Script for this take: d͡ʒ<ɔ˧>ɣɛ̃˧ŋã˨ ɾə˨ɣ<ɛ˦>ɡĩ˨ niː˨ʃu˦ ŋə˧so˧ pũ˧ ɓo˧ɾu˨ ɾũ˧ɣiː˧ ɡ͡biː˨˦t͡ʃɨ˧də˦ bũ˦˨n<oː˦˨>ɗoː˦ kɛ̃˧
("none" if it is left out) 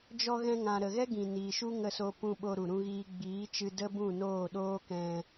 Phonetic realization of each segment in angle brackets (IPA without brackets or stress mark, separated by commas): ɔ˧, ɛ˦, oː˦˨